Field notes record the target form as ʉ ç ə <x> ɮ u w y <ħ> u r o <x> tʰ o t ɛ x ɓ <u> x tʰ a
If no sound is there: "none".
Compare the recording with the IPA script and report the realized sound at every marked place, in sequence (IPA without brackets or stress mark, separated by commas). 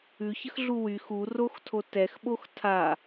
x, x, x, o